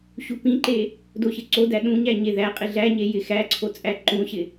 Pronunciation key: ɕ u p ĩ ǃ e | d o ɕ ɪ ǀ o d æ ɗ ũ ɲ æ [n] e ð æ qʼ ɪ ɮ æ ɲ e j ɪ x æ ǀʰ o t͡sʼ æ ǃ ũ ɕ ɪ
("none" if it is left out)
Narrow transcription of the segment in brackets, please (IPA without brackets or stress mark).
ɲ